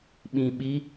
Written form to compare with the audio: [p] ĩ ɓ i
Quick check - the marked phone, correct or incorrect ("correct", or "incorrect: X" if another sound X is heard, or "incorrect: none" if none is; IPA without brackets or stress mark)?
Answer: incorrect: ɓ